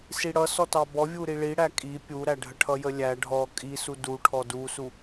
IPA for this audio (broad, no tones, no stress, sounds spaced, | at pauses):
s i ɽ ʌ s ɔ t ɑ b ɔ vʲ u ɾ i ɭ i ɽ æ kʼ i pʲ u ɾ æ ɖʱ ə ʈʰ ʌ j ə lʲ æ ɖʱ ɔ kʼ i s u d u ʈʰ ɔ d u s u